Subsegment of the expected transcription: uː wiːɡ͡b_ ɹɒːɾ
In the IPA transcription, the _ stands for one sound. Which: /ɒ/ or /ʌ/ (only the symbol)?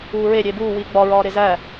ɒ